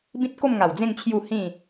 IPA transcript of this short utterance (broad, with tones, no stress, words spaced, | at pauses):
bĩ˦t̚ko˥˧mŋa˨˩wd͡zẽ˥˧ŋ t͡ɕʰju˥˧hĩ˥˧